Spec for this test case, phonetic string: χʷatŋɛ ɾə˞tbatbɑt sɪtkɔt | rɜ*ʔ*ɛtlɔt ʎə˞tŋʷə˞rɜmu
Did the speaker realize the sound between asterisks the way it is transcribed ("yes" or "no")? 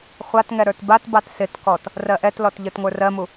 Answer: yes